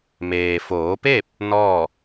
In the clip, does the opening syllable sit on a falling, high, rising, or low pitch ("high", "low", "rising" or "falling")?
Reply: low